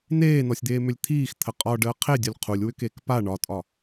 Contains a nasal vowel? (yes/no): no